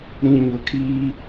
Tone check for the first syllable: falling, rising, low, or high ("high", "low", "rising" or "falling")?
low